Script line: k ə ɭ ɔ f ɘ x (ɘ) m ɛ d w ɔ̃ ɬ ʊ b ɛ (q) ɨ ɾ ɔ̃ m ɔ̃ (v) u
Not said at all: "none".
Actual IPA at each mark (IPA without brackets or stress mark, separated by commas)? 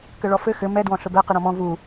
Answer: ɘ, q, v